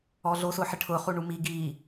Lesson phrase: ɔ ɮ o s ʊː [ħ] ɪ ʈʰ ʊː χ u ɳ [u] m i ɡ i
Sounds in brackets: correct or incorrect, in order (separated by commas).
correct, correct